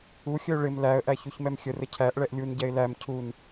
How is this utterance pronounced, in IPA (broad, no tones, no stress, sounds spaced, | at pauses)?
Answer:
u xʲ ə ʊ̯ ɭ ɪ m l æ ə̯ ʔ æ ç u ç m ɛ m xʲ ə r ə cʰ æ ʔ ɭ ɛ ʔ lʲ u n ɟ ɛ ɪ̯ l æ m cʰ u n